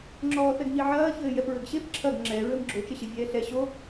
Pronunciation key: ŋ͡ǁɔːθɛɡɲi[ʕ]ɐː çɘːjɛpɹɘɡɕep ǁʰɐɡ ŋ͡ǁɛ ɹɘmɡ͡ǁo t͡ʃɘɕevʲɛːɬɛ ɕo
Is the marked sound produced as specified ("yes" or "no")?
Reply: yes